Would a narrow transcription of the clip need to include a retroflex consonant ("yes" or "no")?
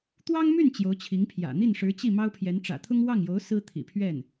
yes